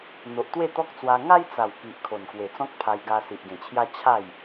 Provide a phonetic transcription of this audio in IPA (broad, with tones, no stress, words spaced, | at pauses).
n̪o˨ʔ t̪we˥˧t̪ɔ˦k̚t͡swa˧ ŋa˦jt͡sa˨˩w ki˨ʔ kʰo˨˩nkwe˨˩t͡sɔ̃˦k̚ pʰa˧jɡa˧ si˨ʔɡẽ˨˩t͡ɕʰja˦ t͡ɕʰa˥˧j